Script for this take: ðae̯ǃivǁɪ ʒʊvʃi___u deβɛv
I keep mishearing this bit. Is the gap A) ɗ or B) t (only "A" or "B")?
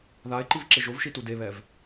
B